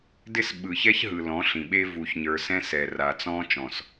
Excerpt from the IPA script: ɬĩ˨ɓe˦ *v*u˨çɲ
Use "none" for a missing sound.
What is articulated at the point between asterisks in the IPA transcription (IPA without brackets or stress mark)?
v